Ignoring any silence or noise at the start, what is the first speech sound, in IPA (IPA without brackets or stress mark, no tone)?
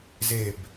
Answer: z